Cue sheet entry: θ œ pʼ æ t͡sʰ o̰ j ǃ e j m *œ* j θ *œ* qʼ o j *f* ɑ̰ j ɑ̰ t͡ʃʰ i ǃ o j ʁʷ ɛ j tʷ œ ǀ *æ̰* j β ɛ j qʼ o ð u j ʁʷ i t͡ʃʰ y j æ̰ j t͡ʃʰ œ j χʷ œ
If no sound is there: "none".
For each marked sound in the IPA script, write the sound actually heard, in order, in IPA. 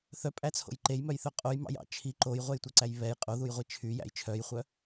œ, œ, m, æ

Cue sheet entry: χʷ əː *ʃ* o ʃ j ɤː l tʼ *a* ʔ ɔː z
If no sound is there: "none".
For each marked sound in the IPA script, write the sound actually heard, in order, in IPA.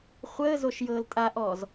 z, a

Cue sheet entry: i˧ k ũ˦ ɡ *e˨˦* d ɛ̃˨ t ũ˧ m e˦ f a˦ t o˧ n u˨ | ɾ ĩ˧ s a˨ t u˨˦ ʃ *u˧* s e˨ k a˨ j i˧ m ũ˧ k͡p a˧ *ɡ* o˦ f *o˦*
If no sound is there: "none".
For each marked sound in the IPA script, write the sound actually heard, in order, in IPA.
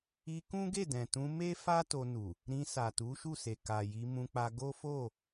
e˦˨, u˦˨, ɡ, o˦˨

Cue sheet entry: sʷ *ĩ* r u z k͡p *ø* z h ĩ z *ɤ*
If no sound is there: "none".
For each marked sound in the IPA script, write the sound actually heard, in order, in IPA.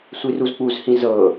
i, u, ɤ

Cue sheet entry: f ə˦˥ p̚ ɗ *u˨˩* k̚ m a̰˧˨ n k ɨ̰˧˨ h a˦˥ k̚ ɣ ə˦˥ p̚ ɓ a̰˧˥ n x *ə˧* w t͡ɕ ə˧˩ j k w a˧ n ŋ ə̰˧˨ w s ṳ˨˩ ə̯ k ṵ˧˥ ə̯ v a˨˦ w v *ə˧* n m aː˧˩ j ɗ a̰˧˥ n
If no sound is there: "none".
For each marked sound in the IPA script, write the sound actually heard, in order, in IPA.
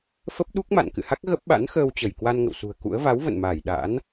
u˦˥, əː˧, ə̰˧˨

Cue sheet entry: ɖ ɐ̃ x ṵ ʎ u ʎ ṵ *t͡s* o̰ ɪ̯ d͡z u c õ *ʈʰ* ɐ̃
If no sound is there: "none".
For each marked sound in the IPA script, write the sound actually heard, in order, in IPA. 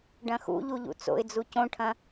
t͡s, ʈʰ

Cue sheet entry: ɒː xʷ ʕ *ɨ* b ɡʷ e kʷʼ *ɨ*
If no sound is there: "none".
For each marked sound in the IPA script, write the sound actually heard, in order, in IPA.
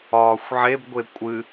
e, ɨ

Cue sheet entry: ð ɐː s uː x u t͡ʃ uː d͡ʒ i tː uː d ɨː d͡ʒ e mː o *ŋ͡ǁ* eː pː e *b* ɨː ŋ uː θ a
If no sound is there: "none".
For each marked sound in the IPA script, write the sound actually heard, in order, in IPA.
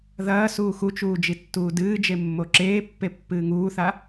ǁ, pː

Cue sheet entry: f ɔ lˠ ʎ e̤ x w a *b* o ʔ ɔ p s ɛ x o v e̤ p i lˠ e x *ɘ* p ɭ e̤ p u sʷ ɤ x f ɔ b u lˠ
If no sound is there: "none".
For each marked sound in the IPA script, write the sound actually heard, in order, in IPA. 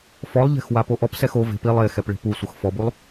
p, ɛ

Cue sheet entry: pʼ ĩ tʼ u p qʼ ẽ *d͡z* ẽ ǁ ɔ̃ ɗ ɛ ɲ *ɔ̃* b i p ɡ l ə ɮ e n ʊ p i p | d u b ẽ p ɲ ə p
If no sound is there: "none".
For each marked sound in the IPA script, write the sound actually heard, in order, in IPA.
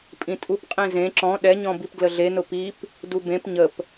z, ɔ̃

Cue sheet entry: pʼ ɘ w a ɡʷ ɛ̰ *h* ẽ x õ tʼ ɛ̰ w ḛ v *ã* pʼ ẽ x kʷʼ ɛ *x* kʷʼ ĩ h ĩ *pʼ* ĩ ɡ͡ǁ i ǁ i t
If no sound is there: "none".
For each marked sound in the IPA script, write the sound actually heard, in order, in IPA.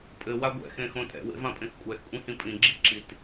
x, ã, x, pʼ

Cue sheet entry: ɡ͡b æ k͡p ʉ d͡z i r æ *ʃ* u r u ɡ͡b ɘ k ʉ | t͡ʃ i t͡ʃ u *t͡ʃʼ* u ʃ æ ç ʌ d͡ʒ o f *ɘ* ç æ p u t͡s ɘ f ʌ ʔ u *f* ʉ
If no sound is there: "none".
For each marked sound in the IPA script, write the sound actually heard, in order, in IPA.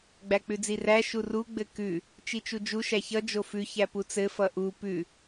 ʃ, d͡ʒ, ʉ, p

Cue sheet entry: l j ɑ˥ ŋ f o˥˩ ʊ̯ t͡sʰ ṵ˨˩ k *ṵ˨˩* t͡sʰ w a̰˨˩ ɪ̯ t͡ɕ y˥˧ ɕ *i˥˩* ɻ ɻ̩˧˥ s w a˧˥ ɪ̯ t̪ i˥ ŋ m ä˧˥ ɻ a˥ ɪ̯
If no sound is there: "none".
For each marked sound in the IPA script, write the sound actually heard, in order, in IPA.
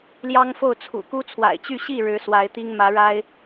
u˥, i˥˩

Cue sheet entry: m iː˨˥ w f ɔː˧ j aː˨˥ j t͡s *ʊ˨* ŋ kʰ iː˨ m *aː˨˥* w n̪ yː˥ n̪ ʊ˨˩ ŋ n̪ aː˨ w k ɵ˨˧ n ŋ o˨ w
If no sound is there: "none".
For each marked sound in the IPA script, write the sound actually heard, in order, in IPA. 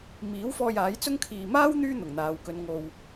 ʊ˥, aː˥

